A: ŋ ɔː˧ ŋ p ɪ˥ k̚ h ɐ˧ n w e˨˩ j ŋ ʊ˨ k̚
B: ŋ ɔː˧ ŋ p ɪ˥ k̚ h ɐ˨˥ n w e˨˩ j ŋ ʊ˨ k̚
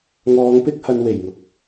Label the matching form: A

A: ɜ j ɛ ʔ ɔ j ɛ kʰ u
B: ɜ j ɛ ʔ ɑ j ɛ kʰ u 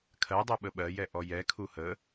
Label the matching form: A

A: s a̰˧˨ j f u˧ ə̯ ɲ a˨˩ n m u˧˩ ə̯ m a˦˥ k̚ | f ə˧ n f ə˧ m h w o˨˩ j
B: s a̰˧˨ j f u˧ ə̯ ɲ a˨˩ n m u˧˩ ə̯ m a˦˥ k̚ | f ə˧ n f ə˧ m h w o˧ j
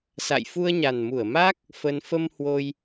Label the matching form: B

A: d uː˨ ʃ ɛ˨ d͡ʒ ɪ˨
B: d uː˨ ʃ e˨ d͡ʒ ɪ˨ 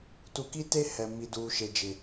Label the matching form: B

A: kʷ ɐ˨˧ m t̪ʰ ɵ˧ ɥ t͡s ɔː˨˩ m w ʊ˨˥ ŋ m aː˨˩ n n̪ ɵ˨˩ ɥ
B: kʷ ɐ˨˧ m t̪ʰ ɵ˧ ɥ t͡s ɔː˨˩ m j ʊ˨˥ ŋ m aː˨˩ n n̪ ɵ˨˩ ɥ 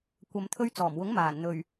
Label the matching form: A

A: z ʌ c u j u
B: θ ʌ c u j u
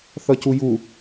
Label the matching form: B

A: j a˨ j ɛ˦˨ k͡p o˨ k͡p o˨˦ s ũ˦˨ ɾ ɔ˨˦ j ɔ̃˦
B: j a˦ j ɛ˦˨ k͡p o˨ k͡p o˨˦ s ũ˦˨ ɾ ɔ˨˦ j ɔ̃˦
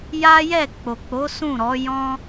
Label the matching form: B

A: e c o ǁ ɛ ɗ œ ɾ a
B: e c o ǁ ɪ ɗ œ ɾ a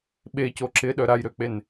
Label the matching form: B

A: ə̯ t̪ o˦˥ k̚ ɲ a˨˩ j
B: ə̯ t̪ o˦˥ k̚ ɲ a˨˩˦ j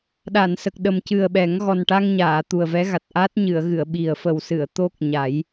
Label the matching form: B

